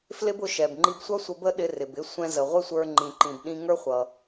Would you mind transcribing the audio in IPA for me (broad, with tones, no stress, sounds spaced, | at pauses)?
f l ɪ˥ b ʊ˧ ʃ ɛ˩ b ŋ͡ǃ i˧ b sʷ ʌ˥ sʷ ə˧ b ə˥ ɗ ɪ˧ r ɪ˩ b ɪ˧ sʷ ɛ̃˧ z ə˩ ʁʷ ɪ˥ sʷ ə˞˧ ŋ͡ǃ ĩ˩ ǃ ĩ˩ b ɗ ĩ˧ ŋ ə˞˥ χʷ ʌ˩